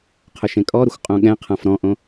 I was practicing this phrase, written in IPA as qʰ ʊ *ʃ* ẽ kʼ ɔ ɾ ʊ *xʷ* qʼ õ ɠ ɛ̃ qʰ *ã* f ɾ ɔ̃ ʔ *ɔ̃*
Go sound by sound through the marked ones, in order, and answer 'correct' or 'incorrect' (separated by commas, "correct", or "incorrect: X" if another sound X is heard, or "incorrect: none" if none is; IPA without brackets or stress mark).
correct, correct, correct, incorrect: õ